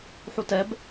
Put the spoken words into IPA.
ħutɛb

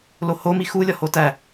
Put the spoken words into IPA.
loho mixulʲɒ hotæ

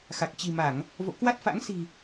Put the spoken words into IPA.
xa˨˩k̚ t͡ɕi̤˨˩ma˧˩˨ŋ | vo̰˧˨kwa˦˥t̚fa̰˧˥ŋ si̤˨˩

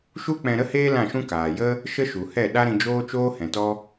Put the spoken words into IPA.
ʃu˦k͡pɛ̃˧ ɾə˦heː˦ lã˦˨ʃũ˦ kaː˨jə˦ | ʃə˦ʃu˨hɛ˦˨ ɗa˦ɾĩ˧d͡ʒoː˦t͡ʃoː˦ hɛ̃˨tɔ˦

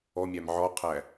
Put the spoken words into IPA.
ɔmʲæm ʕɔqʰæ

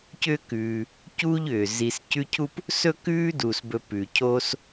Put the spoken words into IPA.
cʏː˥kʉː˨ | cuː˥ʎʏː˩ zi˨s cʉ˦cʰu˥p | sɵ˥kʉː˥duː˩sbɵ˨ pʉ˩cʰoː˦s

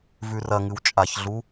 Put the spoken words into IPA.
vʉrɐŋɨw t͡ʃʼaçɮu

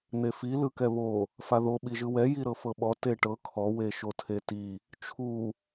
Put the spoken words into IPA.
n̪efi lɯkɛβo | faðo ɓiʒɯwɛ jiɾɤfɤɓɔ teʈɤ kʰɔ weʃotʰeti | t͡ʃʰu

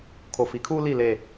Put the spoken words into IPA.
kʰo˨fi˨˦kʰuː˦ li˦˨ le˨

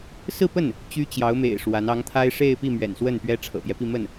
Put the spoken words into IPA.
sɹ̩˥˧pə˥˩n | t͡ɕy˥t͡ɕjɑ˧˥ʊ̯mḛ˨˩ɪ̯ ʂwa˧˥n ɑ˧˥ŋt̪ʰa˥ɪ̯ʂe˥˧ɪ̯pi˥˩ mɥɛ̰˨˩nswə˥˩npɥɛ˥ ʈ͡ʂʰɤ̰˨˩pjɛ˦pi˥˧ mə˥˩n

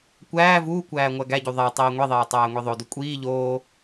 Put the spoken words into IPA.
kʷæː vuːkʷæː ŋʷæɡæɟu ðˤæ tˤiːŋʷiðˤeː tˤæːŋʷiðˤodu kʷʼiː ʎoː

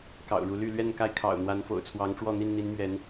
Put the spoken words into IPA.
kɑ̰˨˩ʊ̯ɻu˨˦ly˥˨ lɥɛ˥˨nka˥˨ɪ̯ kʰɑ̰˨˩ʊ̯n̪wa˨˦nfo̰˨˩ʊ̯ t͡sʰwɑ˨˦ŋʈ͡ʂwɔ˥˨n̪i˥˨n n̪i˨˦nmɥɛ˨˦n

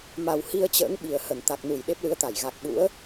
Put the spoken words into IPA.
ma˨˩w hi˧ə̯t͡ɕə̰ː˧˥ŋɓi˨˩ə̯ hə˧˩nt̪a˨˩k̚nu˧˩j ɗe˦˥p̚lɨ˨˦ə̯t̪a˧˩j ɣa˨˩k̚ɓṵ˧˥ə̯

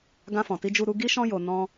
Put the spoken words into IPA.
ɡã˧fɔ̃˨ti˧ d͡ʒu˧ɾu˧ɡi˦ʃɔ̃˦ jo˧nɔ̃˦

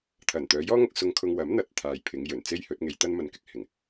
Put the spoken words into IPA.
t̪ʰɐ˨˩nt̪œː˨˧jɔː˥ŋɐ˧k̚ sʊ˧ŋkʰʊ˧ŋ wɐ˨˥mn̪ɐ˨t̚ t̪ʰaː˨jpʰɪ˨˧ŋ jɵ˨˩n t͡se˥jhɵ˨˥t̚ŋe˧j t̪ɐ˥n mɐ˧nkɪ˥k̚hɪ˨˩ŋ

